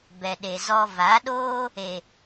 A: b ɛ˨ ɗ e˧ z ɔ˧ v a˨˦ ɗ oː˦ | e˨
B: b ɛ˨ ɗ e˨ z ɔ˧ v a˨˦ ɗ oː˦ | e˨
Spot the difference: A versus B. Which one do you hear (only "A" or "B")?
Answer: B